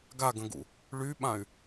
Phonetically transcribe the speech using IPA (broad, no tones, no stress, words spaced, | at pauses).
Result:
ɡaɡə̃ɡṵ | ɭyɓãy̯